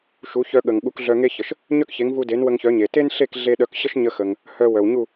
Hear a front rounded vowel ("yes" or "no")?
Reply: yes